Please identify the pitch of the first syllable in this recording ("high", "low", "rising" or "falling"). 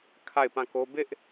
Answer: falling